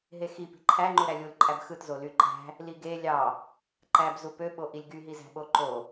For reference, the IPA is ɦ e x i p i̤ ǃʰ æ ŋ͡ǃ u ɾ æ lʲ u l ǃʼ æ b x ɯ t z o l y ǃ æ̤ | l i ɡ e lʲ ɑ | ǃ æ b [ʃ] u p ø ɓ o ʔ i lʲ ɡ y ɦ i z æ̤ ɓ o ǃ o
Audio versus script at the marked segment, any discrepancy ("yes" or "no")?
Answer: yes